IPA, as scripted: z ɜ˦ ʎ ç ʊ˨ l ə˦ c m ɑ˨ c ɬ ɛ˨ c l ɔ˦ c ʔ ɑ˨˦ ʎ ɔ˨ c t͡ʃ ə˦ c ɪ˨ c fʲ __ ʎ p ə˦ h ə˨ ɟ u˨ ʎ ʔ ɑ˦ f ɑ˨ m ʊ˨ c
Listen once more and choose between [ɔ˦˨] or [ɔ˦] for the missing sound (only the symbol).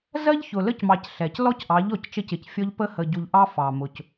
ɔ˦